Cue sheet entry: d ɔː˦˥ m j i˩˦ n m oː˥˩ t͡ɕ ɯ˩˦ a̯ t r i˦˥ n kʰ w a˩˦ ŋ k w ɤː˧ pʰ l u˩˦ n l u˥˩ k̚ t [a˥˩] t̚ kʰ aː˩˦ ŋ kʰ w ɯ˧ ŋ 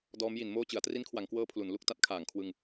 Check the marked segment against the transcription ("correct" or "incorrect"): incorrect